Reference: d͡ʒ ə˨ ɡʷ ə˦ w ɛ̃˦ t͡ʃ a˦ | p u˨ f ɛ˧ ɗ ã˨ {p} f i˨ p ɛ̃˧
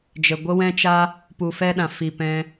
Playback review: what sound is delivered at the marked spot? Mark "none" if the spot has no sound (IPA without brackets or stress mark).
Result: none